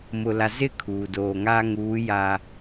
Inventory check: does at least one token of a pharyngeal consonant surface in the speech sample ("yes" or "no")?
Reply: no